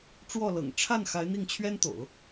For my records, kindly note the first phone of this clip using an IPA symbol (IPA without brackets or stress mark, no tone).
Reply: ʈ͡ʂ